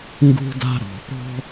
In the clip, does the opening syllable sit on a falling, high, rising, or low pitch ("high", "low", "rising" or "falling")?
high